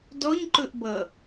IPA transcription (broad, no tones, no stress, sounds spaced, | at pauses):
d ɔ ɲ ǃ ɵ ʔ b ʌ